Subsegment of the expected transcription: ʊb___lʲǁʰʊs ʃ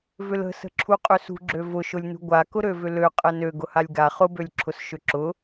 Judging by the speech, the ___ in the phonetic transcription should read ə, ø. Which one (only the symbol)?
ø